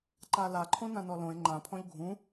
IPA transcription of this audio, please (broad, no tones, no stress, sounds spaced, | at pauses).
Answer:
ǃ a l a ǃʰ õ n ã n ɔ l õ e̯ ŋ͡ǃ ã pʰ ɔ̃ ʎ ɡʱ ũ